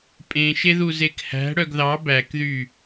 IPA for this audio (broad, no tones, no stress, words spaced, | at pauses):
pʼẽʃeðu zekhæ̤ ɽœɡðɑ bækðy